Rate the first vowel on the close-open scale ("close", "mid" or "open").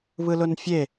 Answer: close